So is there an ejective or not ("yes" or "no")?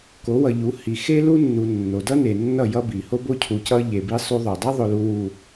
no